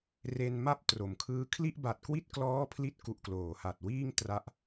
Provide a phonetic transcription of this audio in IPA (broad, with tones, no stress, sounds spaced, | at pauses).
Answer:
r e˧ n m a˥˩ p̚ t r o˩˦ m kʰ ɯː˦˥ kʰ l i˥˩ ʔ b a˨˩ t̚ k w i˥˩ t̚ k l ɔː˦˥ pʰ l i˦˥ t̚ k u˨˩ ʔ k l oː˩˦ h a˨˩ t̚ w iː˥˩ ŋ t r a˦˥ ʔ